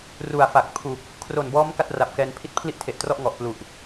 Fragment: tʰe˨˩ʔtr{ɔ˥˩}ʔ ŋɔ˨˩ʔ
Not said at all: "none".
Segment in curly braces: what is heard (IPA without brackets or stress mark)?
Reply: ɔ˥˩